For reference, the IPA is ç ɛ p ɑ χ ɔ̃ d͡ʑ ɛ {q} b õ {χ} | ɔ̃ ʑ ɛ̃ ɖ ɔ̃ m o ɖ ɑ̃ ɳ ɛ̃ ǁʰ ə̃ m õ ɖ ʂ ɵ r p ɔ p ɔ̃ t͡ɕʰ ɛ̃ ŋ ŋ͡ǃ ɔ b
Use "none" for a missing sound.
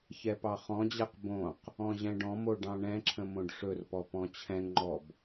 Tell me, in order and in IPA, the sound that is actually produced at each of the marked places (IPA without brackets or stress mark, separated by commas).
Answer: q, q